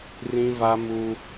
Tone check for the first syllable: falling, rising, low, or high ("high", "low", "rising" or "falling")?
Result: high